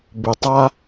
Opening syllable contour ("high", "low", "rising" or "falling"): low